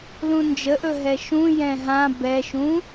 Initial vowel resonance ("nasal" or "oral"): nasal